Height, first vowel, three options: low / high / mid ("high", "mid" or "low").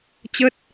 mid